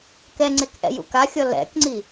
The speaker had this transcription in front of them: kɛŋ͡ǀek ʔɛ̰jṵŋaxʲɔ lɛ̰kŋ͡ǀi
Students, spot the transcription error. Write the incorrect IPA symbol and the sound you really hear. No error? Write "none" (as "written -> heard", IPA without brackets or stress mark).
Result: ŋ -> k